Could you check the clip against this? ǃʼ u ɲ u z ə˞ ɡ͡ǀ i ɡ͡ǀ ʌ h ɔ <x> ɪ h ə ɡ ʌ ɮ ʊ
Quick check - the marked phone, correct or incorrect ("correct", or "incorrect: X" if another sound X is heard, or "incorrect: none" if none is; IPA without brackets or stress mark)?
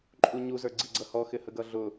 correct